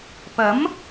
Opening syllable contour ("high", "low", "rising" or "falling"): rising